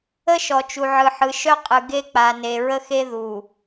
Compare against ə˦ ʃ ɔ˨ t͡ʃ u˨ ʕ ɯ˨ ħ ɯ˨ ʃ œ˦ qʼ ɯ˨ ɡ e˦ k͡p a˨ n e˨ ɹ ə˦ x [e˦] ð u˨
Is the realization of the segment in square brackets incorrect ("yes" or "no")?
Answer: no